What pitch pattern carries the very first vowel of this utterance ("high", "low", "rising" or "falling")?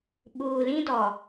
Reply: low